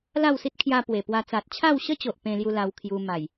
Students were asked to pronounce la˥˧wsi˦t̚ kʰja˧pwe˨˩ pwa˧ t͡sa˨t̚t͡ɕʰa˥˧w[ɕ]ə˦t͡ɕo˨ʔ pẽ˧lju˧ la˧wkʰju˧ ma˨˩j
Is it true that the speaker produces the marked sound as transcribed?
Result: yes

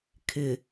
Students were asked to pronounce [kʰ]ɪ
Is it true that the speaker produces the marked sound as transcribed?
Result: yes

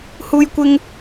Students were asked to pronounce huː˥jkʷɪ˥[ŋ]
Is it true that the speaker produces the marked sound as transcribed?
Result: yes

